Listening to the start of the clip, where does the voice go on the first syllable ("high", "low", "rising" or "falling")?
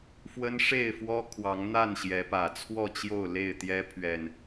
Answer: high